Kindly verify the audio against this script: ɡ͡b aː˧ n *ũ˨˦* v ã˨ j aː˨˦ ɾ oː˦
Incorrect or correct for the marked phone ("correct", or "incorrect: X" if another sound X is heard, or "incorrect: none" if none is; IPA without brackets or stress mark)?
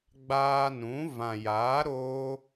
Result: correct